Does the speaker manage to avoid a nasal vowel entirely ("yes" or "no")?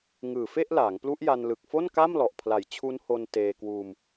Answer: yes